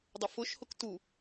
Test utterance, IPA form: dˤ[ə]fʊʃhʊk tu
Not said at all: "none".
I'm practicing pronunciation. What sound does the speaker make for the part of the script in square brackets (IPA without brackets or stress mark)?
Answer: ə